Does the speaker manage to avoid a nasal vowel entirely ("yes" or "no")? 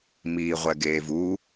yes